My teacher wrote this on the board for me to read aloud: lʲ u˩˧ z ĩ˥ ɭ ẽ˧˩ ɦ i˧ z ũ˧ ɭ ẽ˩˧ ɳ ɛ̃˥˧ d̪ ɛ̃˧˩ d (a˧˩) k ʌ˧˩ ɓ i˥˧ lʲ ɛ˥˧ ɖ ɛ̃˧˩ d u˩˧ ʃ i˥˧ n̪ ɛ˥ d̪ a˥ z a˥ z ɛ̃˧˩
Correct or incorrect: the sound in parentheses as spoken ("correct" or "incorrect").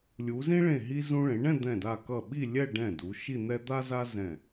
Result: correct